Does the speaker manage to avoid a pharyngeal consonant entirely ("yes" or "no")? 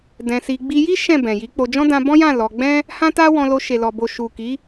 yes